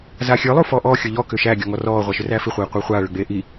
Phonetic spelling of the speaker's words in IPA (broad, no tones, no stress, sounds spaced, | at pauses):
z a xʲ ə˞ lˠ u f ɔ ʔ ɔ xʲ ɤ ʎ ɔ k ʏ ʃ æ ɡʲ ɔ ŋ ɔ r ɔː ʁʷ a ʃ ʏ r æ f i χʷ eː qʷ ə˞ χʷ aː ɭ ʏ ɡ͡b eː ʔ i